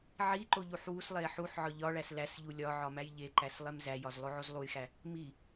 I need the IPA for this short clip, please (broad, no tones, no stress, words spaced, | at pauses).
ʕiǃo ʎuħwuslˠe ħuħʕɒ ʎɒɭæs læsʎu lʲɒ ʕɒmæjʎeǃæs lˠemzæjɒz lˠoʕozlˠujxæ | mi